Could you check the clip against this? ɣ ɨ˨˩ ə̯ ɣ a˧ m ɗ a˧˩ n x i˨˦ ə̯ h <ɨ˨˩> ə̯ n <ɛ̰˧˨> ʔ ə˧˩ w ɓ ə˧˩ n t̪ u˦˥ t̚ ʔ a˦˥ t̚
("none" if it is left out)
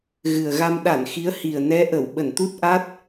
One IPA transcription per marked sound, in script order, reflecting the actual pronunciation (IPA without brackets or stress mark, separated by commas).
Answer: i˨˩, ɛ˨˦